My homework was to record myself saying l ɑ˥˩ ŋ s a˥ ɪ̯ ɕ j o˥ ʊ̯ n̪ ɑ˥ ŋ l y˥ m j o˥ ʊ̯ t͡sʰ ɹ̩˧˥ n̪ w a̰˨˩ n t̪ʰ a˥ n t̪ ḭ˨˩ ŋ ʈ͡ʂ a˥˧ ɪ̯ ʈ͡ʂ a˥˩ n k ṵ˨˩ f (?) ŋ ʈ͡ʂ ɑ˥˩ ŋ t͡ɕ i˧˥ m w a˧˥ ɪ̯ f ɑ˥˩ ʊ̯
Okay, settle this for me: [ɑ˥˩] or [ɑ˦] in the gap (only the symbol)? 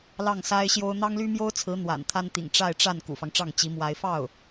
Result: ɑ˦